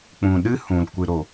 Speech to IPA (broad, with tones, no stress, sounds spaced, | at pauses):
k͡p ũ˨ ɗ ɨ˦ h ũ˨ l kʷ ɨ˨ ɾ o˨